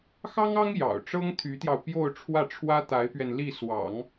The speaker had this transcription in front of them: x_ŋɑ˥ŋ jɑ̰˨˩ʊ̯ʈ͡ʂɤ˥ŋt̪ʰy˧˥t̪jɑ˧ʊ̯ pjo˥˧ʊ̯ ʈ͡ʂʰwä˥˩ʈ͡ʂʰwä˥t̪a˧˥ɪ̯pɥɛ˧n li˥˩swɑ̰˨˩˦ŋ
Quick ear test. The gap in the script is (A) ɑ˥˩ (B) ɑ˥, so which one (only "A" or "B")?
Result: B